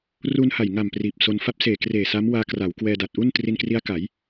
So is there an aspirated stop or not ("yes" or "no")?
no